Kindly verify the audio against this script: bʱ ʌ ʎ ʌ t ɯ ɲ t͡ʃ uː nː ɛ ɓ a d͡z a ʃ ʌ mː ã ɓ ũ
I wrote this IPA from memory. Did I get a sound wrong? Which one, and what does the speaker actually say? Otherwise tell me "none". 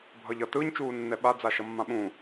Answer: none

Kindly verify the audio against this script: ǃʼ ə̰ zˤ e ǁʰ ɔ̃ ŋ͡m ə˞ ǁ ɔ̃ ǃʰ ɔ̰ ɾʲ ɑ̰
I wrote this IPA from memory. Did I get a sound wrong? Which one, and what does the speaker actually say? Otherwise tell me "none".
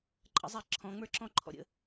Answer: ɑ̰ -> ə̰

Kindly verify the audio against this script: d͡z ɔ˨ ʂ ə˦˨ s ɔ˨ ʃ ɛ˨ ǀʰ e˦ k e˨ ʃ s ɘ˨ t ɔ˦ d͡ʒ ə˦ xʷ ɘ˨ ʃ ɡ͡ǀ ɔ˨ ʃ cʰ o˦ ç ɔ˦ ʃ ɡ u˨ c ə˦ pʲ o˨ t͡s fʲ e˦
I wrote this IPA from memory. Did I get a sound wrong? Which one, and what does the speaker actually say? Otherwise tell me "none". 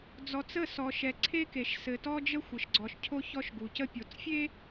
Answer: ʂ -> t͡s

